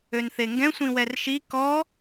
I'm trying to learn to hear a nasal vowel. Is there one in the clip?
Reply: yes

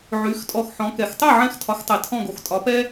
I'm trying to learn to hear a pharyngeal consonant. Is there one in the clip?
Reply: yes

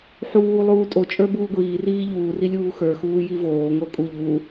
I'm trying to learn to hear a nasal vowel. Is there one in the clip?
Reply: no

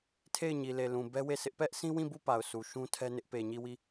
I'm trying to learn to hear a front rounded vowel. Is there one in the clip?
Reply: no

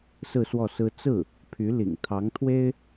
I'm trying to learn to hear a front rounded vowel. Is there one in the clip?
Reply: yes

